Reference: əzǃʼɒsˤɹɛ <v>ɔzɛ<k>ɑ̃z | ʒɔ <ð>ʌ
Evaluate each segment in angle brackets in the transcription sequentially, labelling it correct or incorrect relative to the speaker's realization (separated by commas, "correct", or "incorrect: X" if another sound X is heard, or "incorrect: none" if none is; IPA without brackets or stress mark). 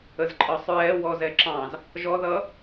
incorrect: w, incorrect: ǁ, correct